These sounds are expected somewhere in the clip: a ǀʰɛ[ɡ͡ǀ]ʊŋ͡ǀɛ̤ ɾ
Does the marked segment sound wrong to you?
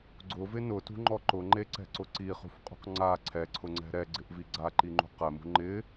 yes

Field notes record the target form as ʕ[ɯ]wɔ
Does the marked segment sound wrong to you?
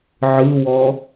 no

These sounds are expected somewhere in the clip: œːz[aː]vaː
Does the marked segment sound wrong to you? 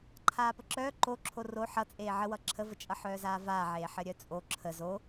no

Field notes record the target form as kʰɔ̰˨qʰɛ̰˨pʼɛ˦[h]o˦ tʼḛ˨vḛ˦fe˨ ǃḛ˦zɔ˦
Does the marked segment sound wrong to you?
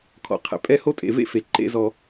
no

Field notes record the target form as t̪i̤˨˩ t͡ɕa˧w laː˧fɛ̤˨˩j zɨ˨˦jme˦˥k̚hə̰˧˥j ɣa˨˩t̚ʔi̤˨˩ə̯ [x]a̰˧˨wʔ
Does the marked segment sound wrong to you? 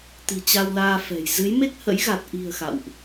no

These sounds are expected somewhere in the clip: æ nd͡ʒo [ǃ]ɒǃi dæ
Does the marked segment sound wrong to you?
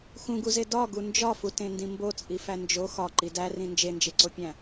yes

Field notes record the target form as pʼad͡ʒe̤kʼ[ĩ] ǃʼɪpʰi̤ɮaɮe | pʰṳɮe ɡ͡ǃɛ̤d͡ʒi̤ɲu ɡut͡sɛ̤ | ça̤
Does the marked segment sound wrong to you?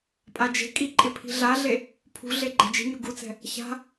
yes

